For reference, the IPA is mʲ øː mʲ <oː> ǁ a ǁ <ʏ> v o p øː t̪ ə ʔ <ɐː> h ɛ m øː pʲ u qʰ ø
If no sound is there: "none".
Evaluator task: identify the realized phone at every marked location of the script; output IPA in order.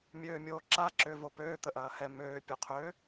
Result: oː, ʏ, ɐː

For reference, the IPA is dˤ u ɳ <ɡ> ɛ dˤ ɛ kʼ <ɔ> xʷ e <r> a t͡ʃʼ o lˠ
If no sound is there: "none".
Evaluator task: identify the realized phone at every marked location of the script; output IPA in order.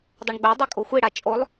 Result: ɡ͡b, o, ɽ

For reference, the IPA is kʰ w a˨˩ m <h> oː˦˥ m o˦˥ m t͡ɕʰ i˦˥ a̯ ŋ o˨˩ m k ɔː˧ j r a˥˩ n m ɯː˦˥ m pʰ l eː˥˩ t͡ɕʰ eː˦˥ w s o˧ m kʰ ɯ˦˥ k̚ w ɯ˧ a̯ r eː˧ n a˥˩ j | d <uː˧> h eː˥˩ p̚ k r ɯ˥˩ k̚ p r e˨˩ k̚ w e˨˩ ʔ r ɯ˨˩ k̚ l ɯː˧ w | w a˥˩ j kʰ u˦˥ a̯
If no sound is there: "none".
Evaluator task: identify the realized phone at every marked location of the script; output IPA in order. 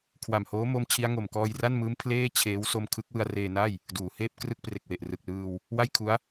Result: h, uː˩˦

